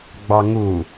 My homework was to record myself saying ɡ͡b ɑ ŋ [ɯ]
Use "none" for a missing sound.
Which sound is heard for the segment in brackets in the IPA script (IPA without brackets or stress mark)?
u